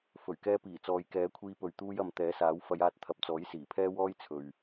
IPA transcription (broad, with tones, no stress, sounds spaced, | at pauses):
f ɵ˨˩ ɥ k ɛː˧ p iː˨˩ t͡s ɔː˨ j k ɛː˨˥ kʷʰ iː˧ p ɵ˨ ɥ t̪ uː˧ j ɐ˨ m t̪ ɛː˨˥ s aː˨˥ w f ɐ˨˧ j aː˧ t̚ t̪ʰ ɐ˨˥ p̚ t͡s ɔː˨˥ j s iː˨˩ pʰ ɛː˥ w ɔː˥ j t͡sʰ ɵ˨ ɥ